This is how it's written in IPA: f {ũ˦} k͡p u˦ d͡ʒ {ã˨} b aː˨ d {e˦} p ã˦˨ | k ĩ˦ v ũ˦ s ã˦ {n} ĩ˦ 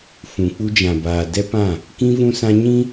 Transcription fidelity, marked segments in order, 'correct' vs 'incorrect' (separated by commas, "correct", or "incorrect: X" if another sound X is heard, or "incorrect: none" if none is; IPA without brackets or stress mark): incorrect: ũ˨, correct, incorrect: ɛ˦, incorrect: ɲ